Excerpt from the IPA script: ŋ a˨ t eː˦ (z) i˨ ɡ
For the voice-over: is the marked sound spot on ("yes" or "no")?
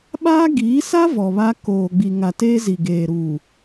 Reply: yes